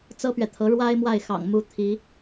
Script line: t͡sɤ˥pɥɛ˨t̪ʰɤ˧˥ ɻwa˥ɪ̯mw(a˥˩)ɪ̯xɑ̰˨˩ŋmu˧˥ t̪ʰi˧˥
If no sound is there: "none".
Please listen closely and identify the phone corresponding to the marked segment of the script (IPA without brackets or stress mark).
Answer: a˥˩